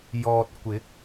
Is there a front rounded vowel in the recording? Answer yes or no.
no